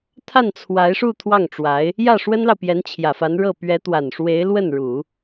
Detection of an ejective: absent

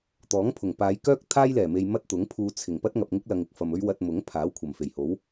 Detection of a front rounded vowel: present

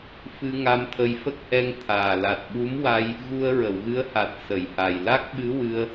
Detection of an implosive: present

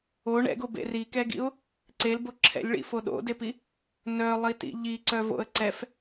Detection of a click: present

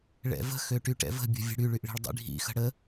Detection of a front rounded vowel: present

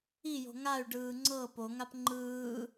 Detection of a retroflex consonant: present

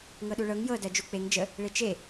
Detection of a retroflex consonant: present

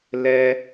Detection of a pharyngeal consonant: absent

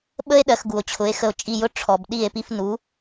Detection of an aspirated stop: present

